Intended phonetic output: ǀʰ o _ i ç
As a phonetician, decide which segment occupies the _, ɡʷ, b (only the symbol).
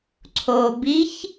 b